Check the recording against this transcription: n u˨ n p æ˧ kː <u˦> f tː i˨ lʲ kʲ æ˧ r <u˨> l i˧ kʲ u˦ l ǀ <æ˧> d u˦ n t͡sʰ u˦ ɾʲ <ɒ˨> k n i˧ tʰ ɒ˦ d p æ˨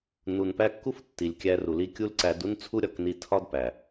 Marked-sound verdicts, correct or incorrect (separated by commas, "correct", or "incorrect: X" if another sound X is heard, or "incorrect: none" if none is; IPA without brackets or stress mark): correct, correct, correct, correct